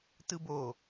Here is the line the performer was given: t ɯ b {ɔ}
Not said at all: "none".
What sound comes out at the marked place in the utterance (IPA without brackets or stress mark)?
o